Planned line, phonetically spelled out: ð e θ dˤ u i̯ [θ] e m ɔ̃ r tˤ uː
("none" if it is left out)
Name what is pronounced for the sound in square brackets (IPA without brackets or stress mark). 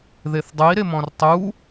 ɾ